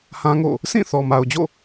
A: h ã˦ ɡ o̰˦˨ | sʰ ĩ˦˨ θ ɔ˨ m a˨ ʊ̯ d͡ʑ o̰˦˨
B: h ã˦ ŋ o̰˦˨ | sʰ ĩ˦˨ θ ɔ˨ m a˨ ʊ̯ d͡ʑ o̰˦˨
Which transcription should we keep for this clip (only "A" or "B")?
B